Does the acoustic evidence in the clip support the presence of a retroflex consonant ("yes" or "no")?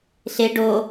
yes